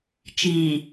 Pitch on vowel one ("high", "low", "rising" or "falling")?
low